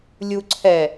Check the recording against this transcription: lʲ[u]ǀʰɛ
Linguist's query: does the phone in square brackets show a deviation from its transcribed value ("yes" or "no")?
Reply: no